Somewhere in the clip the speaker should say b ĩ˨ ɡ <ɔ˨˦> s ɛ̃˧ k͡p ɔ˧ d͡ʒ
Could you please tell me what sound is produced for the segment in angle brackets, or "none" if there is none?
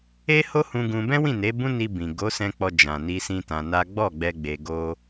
o˨˦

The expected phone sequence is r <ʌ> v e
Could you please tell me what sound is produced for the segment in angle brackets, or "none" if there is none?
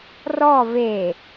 ɔ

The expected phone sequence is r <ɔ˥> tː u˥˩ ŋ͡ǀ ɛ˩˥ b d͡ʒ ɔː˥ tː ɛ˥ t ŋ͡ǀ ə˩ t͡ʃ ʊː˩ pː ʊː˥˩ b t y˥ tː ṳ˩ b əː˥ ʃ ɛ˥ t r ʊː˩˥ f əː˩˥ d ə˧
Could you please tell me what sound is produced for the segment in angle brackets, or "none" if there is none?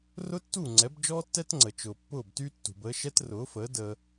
ʊ˥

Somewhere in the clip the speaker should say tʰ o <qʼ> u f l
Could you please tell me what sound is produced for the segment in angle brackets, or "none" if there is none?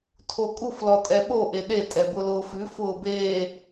kʼ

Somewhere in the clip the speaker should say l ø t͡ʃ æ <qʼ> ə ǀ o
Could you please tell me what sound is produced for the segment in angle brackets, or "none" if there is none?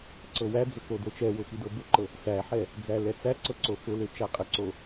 qʼ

